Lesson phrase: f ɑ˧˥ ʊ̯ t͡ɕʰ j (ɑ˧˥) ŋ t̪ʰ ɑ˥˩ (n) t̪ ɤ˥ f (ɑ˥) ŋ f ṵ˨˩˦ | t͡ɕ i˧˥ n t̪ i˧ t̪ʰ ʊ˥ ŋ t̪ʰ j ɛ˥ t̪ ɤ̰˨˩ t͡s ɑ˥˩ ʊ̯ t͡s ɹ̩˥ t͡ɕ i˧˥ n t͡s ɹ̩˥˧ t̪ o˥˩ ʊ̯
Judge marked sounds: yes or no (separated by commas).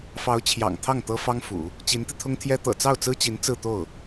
no, no, yes